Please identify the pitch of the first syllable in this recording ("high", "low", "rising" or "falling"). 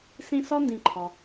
high